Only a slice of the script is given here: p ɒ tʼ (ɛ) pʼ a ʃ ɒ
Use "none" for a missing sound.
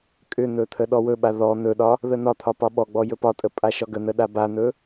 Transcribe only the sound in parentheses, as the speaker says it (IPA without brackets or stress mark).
ə